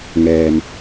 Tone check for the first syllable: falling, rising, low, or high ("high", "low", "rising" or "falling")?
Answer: low